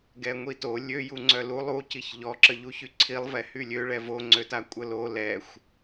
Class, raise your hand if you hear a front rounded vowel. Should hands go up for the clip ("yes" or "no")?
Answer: yes